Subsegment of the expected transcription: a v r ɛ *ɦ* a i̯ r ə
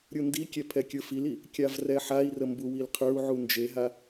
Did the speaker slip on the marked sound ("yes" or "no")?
yes